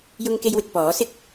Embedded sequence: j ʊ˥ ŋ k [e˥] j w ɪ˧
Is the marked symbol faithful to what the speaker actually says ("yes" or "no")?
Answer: yes